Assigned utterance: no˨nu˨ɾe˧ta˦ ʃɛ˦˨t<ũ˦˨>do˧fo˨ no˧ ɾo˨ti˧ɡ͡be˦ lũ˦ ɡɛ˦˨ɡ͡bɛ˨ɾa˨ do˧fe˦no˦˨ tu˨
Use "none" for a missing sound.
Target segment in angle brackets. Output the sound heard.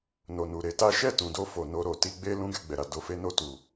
ũ˨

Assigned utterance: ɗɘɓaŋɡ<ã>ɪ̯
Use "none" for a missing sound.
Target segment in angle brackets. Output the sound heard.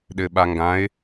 ã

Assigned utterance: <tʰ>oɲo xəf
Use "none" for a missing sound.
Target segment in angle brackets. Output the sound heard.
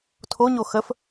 tʰ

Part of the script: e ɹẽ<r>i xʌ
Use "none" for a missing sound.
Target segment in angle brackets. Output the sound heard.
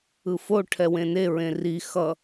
r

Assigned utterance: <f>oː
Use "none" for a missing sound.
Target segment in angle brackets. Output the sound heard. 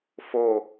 f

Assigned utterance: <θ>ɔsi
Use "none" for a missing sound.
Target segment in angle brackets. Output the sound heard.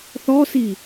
θ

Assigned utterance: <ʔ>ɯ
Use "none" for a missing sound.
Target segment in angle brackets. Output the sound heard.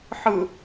ħ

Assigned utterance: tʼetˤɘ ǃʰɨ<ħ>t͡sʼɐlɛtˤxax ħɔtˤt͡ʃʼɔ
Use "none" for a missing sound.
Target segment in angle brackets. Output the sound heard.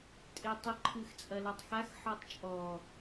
x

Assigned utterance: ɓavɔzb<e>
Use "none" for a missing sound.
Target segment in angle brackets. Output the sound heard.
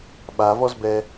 ɛ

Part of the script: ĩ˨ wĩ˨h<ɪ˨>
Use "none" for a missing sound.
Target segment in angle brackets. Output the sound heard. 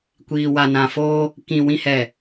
ɛ˨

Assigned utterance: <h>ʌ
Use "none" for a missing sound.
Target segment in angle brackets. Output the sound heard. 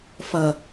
f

